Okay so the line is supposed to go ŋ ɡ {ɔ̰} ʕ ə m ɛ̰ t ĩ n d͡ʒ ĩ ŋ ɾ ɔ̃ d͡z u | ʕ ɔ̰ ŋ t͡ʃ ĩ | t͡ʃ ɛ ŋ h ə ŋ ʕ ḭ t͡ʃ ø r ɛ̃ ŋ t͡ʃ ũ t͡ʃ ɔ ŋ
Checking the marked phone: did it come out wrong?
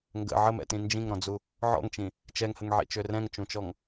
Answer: yes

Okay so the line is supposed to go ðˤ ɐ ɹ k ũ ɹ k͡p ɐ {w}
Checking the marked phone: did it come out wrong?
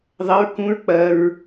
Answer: yes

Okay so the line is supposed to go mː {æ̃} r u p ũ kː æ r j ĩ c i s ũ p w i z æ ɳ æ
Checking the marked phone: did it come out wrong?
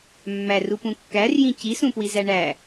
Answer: yes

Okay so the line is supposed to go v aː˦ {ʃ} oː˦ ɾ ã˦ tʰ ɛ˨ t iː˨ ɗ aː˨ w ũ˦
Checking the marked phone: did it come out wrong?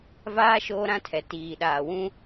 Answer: no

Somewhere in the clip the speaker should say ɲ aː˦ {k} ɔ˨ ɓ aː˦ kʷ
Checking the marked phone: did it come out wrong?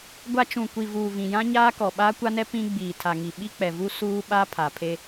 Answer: no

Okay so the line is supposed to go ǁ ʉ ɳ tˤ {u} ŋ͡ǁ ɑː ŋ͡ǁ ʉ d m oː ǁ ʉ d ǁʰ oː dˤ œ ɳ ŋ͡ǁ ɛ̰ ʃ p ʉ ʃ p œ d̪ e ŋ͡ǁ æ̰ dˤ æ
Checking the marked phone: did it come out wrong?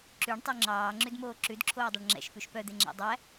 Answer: yes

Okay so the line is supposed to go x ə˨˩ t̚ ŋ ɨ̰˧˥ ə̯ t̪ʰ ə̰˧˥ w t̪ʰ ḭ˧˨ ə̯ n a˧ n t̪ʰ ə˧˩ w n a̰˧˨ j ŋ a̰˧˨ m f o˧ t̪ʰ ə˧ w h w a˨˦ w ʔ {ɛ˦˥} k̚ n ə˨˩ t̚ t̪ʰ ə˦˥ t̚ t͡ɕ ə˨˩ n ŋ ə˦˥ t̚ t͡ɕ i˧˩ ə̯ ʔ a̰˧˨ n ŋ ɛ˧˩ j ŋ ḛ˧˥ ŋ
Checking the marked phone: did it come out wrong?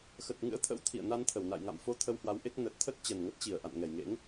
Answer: yes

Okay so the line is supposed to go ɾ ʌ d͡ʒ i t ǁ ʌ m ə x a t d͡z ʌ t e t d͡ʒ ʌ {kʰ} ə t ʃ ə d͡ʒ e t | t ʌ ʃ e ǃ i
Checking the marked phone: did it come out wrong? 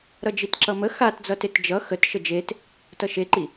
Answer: yes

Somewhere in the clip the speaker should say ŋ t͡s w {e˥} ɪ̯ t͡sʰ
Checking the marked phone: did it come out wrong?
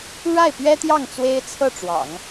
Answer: no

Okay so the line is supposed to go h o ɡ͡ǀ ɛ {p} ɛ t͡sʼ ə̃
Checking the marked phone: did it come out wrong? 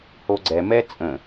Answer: yes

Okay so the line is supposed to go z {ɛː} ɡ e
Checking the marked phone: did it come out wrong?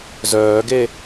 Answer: yes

